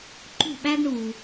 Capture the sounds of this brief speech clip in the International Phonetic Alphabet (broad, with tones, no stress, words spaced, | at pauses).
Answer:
ǃṳ˦˨ɓæ˦ɡɳu˨